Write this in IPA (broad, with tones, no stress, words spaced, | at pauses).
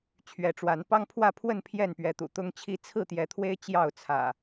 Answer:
t͡ɕʰɥɛ˨˦ʈ͡ʂwa˨˦n pɑ˦ŋpʰwä˥˨pʰwə˥˨n pʰjɛ˥˨npɥɛ˨˦t̪ṵ˨˩ t̪ʊ˦ŋt͡ɕʰi˦ t͡sʰɹ̩˥˨t̪jɛ˨˦t̪ʰwe˦ɪ̯ t͡ɕjɑ˥˨ʊ̯t͡sʰä̰˨˩